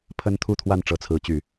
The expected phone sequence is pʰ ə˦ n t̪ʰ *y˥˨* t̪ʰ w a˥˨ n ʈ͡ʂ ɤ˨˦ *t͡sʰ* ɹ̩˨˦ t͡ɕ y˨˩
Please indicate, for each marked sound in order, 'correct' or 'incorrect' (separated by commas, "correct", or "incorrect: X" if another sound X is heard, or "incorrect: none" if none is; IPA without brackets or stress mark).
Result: incorrect: u˥˨, correct